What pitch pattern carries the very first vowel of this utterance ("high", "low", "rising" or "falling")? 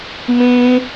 high